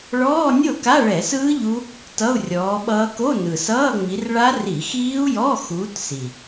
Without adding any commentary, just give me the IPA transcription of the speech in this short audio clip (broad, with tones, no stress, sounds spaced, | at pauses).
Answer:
ɭ ɔː˧˥˧ nʲ o˥˩ k a˧˥˧ ɭ ɛ˧˩˧ s ɯː˦˥ ʎ u˦˥ | t ʌ˧˥˧ u̯ rʲ ɔː˨˦ ɓ ʌː˦˥ k o˧˥˧ n ɯ˨˩ s ʌː˧˥˧ ŋ͡m i˨˦ r ɭ a˦˥ r i˧˩˧ x iː˦˥ u̯ j ɔ˧˥˧ x uː˨˦ t s i˨˩